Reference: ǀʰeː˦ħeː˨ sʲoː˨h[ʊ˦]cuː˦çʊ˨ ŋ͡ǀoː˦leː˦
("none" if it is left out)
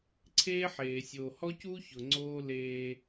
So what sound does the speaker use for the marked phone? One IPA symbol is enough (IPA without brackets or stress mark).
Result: ɔ˦